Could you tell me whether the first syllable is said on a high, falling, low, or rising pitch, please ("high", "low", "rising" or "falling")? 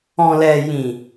low